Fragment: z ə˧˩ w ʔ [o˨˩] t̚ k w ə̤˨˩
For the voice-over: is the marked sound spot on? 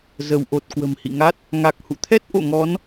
yes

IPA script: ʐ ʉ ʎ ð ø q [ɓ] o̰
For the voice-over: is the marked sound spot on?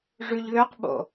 yes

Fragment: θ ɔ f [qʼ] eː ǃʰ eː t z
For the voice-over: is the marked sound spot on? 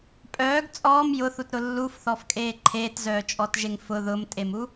no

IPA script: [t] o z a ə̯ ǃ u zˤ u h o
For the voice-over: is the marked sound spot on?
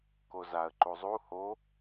no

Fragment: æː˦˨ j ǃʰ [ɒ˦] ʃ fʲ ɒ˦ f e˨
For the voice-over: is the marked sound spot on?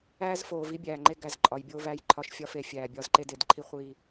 yes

